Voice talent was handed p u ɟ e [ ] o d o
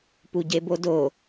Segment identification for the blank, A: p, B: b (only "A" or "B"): B